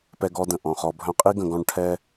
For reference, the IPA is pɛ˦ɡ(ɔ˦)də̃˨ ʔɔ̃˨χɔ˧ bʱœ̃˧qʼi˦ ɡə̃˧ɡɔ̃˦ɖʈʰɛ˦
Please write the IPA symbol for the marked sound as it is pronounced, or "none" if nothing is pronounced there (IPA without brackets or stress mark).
ɔ˦